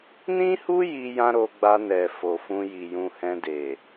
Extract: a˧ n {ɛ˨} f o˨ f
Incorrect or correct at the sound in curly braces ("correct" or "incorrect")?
correct